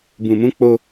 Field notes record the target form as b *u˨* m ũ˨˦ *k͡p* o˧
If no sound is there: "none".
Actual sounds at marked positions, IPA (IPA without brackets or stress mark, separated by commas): ũ˨, k͡p